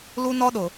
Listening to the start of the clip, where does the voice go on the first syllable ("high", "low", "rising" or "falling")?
high